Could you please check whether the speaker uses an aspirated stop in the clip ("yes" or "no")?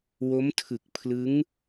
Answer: yes